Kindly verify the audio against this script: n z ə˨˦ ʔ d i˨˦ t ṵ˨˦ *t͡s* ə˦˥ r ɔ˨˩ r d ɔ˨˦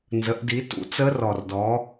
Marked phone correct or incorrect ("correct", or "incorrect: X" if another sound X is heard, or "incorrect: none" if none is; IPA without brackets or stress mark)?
correct